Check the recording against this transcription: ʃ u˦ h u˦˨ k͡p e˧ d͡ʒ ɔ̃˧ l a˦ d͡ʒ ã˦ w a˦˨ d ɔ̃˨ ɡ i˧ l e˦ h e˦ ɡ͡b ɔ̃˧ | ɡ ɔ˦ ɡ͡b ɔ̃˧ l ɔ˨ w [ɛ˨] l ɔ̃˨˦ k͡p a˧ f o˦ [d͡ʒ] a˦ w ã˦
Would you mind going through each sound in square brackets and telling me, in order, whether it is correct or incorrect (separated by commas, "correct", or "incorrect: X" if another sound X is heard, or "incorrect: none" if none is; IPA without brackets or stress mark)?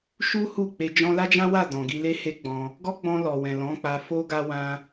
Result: incorrect: ɛ̃˨, incorrect: ɡ